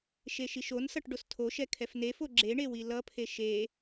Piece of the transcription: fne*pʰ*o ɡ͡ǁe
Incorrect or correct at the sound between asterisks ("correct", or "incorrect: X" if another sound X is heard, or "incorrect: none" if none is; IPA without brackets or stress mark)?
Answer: incorrect: f